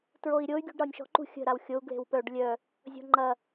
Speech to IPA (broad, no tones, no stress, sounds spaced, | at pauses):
t ɹ o i̯ ɾʲ o y̯ ɡʲ ṳ ɖ ɾ ɒ nʲ ʃ ɔ̤ ǃ ṳ xʲ ə̤ ɾ a w xʲ o u̯ ɡ l e̤ w p œ ɖ lʲ œ | zʲ ɔ̤ ŋ͡ǃ ɐ